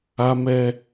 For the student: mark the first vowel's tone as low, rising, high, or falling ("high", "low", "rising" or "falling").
high